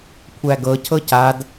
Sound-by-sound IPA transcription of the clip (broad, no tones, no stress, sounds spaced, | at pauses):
kʷʰ æ ɡ ɤ cʰ ɤ c a d